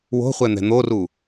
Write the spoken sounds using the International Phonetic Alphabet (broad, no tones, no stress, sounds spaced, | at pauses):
w o̤ χʷ ɛ n̪ ɛ̤ n̪ o r u